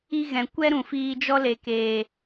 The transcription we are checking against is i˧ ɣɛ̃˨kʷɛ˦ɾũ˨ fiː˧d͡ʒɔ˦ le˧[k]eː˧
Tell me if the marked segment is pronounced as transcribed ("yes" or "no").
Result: yes